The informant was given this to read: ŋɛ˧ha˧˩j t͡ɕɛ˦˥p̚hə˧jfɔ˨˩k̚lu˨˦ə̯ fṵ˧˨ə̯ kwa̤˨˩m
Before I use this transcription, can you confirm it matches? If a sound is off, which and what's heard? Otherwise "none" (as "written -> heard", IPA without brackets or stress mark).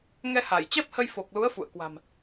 ɔ˨˩ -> o˨˩